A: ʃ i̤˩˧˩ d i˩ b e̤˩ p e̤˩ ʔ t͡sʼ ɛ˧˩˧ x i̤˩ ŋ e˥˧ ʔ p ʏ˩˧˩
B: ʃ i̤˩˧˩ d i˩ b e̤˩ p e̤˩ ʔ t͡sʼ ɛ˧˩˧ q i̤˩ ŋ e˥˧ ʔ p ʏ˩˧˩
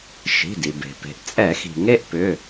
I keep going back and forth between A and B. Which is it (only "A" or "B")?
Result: A